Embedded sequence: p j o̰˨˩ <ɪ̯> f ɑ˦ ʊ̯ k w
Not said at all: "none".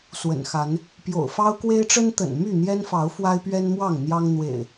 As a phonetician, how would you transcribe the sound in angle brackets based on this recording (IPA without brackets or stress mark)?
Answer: ʊ̯